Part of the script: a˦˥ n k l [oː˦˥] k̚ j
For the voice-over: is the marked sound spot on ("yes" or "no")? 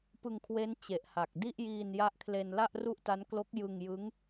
no